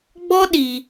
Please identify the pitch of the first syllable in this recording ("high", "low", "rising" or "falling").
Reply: high